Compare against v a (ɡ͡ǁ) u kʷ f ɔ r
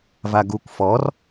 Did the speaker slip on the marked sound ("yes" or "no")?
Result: yes